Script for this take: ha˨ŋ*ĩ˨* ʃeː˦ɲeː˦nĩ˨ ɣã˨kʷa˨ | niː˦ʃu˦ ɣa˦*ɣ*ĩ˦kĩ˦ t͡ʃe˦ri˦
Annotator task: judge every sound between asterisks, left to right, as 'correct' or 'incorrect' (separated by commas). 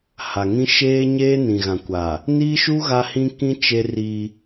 incorrect, incorrect